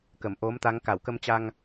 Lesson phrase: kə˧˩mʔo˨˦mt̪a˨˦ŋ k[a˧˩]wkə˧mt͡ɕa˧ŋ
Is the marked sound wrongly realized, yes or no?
no